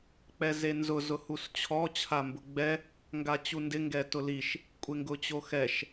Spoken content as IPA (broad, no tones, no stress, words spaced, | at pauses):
k͡pɛzenzʊ zʊhust͡ɕʰɔ t͡ɕʰambʊɡ͡bɛ | ŋɡat͡ɕundɪ ŋɡɛtʊliʃ | kʷʼeŋɡʊt͡ɕoxɛʃ